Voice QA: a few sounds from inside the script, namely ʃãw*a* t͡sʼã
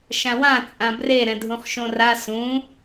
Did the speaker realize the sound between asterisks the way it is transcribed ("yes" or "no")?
no